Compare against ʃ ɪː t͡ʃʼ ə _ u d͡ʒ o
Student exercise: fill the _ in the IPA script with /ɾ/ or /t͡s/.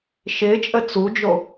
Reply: t͡s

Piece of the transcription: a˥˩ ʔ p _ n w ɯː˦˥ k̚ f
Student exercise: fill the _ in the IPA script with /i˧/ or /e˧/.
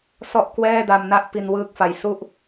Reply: i˧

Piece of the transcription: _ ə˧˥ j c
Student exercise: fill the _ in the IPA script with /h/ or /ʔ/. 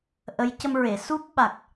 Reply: ʔ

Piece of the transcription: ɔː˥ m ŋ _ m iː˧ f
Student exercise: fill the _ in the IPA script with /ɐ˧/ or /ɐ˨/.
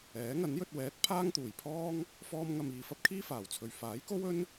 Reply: ɐ˧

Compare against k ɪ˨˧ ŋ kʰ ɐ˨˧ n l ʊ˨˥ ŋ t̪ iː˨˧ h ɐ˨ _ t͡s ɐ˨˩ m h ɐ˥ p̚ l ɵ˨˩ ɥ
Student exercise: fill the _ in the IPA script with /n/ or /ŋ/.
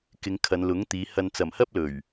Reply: n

